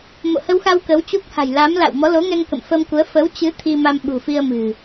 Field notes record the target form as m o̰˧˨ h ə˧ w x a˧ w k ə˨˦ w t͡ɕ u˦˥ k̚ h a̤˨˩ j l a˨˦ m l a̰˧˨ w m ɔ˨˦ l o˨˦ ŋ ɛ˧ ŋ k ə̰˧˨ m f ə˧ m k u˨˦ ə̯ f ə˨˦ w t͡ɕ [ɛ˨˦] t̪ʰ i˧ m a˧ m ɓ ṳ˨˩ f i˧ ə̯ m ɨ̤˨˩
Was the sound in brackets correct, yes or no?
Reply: no